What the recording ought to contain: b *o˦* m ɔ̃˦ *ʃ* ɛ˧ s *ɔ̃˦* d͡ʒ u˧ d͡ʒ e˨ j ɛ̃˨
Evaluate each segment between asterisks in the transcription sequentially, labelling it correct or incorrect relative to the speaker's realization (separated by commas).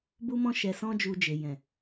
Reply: incorrect, correct, correct